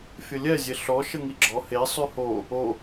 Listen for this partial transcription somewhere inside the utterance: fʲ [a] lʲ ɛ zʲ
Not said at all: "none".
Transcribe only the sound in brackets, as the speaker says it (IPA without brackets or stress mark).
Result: ə